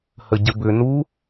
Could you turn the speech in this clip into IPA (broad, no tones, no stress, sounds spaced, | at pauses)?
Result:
h ə ɟ ə b ʏ n u